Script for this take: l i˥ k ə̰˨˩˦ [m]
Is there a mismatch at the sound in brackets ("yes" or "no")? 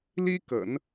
yes